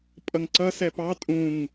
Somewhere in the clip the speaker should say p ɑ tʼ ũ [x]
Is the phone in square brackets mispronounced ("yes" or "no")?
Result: yes